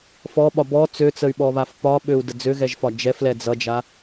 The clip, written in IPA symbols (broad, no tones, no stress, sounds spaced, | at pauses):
f ɔ ɓ ɒ b ɔ t͡s ø t͡s ə y̯ ɓ ɔ β a f p ɒ ɓ ø u̯ d ə d͡z ø ɣ ɛ ʒ f ɒ d͡ʒ ɛ f l ɛ d͡z ʌ d͡ʒ a